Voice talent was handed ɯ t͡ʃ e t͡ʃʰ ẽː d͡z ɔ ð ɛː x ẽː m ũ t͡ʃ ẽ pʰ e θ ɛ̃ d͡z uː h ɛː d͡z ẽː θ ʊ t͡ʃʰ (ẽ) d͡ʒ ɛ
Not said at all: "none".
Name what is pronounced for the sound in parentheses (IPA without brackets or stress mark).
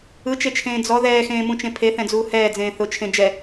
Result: ẽ